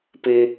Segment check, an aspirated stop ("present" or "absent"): absent